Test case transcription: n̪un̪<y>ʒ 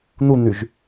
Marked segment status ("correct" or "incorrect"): correct